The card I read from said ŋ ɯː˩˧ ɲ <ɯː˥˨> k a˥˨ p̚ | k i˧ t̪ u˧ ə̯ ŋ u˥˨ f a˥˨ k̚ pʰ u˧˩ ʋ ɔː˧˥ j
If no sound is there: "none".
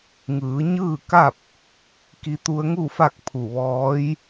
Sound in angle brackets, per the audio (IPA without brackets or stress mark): ɯː˥˨